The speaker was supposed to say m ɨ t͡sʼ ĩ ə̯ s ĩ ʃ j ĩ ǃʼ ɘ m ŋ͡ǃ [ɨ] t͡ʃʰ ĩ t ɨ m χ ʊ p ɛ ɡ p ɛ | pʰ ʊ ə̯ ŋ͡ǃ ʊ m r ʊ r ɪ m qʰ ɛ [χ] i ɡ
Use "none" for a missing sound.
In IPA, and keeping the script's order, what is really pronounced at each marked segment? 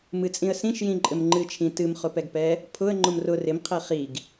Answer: ɨ, χ

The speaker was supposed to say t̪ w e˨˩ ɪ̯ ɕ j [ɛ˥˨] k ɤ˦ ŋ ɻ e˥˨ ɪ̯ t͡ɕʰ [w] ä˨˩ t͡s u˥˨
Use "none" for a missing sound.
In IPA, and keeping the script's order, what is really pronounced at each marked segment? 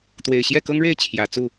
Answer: ɛ˥˨, j

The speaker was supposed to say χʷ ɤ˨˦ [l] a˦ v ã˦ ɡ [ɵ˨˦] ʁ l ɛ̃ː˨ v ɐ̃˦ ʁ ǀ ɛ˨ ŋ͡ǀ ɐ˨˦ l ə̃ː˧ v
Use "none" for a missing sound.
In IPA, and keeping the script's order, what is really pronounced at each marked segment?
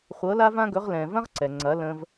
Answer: l, ɵ˨˦

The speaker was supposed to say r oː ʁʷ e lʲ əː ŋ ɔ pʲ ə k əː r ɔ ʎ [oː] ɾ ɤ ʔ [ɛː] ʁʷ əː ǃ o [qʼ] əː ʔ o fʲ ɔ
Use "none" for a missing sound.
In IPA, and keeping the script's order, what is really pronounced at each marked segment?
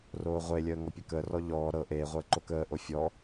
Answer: ɔː, eː, k

